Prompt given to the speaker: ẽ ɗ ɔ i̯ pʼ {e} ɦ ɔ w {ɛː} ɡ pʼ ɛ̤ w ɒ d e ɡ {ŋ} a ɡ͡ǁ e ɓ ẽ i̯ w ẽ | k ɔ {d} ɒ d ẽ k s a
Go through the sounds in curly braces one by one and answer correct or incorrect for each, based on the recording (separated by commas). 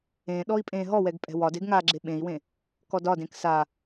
incorrect, incorrect, correct, correct